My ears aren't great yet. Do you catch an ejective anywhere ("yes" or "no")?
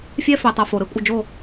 yes